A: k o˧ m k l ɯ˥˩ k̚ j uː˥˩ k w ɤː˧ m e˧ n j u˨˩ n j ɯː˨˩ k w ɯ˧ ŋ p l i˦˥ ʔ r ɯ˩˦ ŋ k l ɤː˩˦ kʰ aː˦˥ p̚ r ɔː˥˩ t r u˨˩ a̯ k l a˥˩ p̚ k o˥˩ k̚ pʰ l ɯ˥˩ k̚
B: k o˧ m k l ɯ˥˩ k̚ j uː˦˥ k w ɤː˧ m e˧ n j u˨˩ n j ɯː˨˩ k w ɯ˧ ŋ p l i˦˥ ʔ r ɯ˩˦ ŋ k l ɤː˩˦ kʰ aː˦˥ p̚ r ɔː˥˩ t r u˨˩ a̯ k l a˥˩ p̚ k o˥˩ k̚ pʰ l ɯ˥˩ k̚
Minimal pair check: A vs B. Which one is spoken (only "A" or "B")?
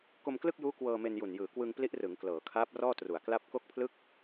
B